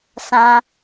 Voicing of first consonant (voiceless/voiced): voiceless